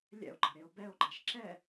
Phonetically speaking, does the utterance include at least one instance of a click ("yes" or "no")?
yes